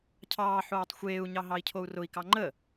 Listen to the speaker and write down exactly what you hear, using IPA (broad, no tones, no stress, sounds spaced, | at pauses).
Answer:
cʰ ɑː ħ oː tˤ xʷ eː u̯ ɲ ɑ ɦ ɑ i̯ cʰ o u̯ r ʊ i̯ k ɑ ŋ͡ǃ ə